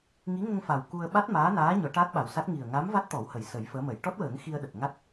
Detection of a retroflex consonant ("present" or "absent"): present